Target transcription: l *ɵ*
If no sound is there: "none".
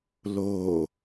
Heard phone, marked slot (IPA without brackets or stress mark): o